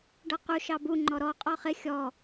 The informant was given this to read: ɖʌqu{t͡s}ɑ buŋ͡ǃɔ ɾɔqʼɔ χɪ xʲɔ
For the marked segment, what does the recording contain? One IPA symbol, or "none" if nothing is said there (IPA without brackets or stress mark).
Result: ʃ